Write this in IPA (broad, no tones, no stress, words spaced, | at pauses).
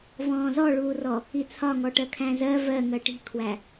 vɔ̃ːzɔɭuːrɔ | it͡sʰɒŋɔʈɜ kʰæ̃zɜ vɜŋɜ ʈi̤kʰwæ